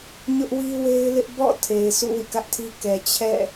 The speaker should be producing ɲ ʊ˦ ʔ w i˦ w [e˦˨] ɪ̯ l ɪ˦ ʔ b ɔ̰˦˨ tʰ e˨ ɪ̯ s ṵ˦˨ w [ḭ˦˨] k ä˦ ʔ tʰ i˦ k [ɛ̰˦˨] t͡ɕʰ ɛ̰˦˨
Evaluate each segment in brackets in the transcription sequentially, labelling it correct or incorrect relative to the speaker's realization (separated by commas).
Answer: incorrect, correct, incorrect